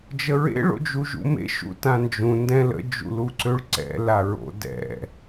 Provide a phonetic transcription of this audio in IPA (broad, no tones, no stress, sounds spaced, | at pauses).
d͡ʒ ə ɹ ḛ ɭ o̰ d͡ʒ u ʒ ṵ m ḛ ʃ ṵ t ã n d͡ʒ ũ n d ɛ̃ l ə̰ d͡ʒ ṵ l u ǀ ø ɭ ǀ ɛ̰ l a ɹ o̰ d ɛ̰